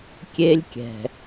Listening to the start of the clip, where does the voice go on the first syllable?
high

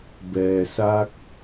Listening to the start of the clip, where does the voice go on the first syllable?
low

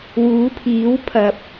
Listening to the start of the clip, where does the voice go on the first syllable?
rising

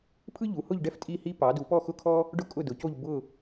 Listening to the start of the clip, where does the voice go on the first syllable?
high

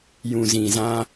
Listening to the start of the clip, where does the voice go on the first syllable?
low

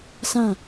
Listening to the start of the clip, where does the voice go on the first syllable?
falling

